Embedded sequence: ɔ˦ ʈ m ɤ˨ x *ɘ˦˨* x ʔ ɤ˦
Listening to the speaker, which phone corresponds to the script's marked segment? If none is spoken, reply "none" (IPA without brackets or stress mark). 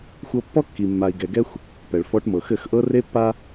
ɘ˦˨